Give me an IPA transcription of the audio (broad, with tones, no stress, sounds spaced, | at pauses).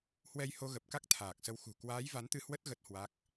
h w ɛ˧ j h o˧ ɣ ə˨˩ p̚ k a˦˥ k̚ t̪ʰ aː˨˩ k̚ s ə˧ w x ṳ˨˩ k w aː˨˦ j v a˨˦ n t̪ ɨ˧ h w ə˦˥ t̚ ɣ ə˦˥ t̚ h w a˦˥ k̚